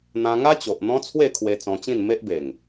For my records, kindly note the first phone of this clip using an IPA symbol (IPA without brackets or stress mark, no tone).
n̪